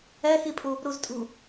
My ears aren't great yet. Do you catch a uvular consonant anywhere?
no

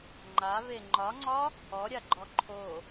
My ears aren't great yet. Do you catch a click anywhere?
yes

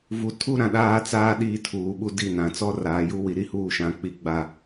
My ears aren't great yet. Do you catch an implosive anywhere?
yes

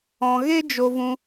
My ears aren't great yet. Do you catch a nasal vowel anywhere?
yes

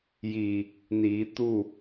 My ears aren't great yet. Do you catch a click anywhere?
no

